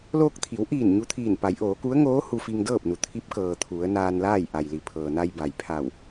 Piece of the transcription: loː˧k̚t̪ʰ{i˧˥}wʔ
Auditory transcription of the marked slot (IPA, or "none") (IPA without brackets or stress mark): i˩˧